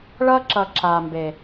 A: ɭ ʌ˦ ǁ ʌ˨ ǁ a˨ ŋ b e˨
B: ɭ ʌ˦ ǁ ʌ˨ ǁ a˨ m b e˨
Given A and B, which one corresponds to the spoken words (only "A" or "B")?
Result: B